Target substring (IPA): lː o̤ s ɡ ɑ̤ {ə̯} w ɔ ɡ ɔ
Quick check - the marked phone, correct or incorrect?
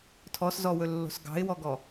incorrect